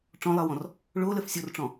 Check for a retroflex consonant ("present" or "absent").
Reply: present